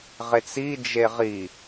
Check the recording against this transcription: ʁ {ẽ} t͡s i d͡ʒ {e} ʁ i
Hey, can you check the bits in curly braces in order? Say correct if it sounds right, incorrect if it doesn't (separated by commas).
incorrect, correct